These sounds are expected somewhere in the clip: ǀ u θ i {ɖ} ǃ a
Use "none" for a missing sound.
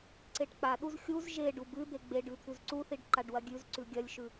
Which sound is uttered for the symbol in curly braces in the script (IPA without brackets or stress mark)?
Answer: ɖ